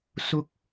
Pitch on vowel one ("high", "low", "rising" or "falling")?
high